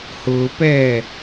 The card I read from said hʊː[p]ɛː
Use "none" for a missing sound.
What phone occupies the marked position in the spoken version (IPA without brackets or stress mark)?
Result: p